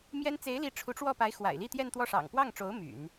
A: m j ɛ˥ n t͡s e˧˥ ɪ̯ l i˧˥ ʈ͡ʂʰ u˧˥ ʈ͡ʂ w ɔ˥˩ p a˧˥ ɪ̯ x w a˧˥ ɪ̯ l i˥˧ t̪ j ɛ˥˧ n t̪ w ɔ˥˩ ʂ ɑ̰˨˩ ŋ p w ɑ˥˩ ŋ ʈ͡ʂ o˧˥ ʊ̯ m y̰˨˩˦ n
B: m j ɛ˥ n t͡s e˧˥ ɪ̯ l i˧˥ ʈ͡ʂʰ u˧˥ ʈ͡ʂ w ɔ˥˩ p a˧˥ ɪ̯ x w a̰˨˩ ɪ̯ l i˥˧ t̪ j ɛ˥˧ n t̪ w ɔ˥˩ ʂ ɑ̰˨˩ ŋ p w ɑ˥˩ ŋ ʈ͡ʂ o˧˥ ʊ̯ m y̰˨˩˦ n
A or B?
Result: B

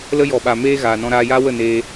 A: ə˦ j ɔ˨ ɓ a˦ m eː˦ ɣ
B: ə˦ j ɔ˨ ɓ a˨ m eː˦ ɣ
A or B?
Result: B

